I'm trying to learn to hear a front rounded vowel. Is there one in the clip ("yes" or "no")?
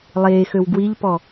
yes